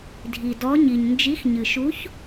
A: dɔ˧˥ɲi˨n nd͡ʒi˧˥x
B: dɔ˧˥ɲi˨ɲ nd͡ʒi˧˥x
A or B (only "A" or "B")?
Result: B